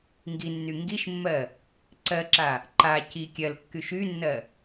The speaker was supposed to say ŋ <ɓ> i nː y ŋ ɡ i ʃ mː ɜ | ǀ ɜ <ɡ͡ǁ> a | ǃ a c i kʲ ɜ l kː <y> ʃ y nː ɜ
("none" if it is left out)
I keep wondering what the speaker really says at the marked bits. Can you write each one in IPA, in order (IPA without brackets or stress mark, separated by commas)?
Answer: ɡ, ǁ, y